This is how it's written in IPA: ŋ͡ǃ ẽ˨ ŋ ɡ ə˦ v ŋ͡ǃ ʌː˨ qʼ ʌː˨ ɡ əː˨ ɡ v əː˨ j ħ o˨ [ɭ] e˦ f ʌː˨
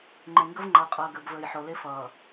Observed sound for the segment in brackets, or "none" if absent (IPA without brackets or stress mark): l